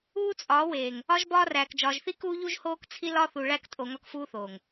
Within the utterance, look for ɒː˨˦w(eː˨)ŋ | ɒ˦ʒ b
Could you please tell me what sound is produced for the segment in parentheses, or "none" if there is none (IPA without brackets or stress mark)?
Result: eː˨